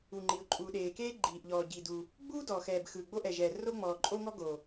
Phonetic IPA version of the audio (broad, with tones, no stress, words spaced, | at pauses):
u˩ŋ͡ǃi˩ʊ̯ ǃʼuː˩ɗeː˩keː˥ ɡ͡ǃiː˩ʔʎɔː˩ ɟi˩du˩ | ɡ͡buː˥dɔː˩xɛː˩b xɯː˩ɡ͡bo˥ʔɛ˩ʒɛː˩ ro˥ŋ͡mɔː˩ ǃʼo˥ŋɔ˥ ɡo˩